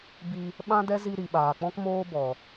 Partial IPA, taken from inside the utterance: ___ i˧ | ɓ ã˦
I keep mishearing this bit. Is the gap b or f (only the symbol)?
b